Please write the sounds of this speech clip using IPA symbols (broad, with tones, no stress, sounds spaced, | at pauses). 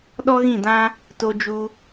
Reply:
ɗ ɔ˦ ɣ ĩ˦˨ d ã˦ | t o˧ d͡ʒ u˧